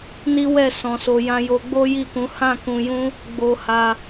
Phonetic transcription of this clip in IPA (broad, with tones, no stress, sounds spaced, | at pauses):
n i˦ w ɛ˦˨ s ɔ̃˨ s o˨ j ã˧ j o˧ ɡ͡b o˦ j i˦˨ k ũ˨˦ h ã˦˨ k ũ˧ j ũ˦ | ɡ͡b o˧ h a˧